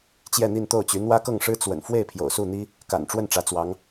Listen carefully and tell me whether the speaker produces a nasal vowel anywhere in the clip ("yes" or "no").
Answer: no